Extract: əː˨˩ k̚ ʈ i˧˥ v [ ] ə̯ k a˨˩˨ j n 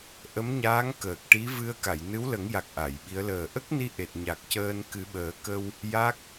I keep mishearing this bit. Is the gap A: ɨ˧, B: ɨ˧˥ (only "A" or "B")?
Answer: A